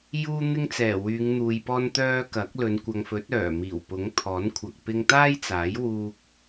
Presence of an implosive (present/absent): absent